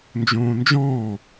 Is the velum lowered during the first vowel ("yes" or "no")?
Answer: yes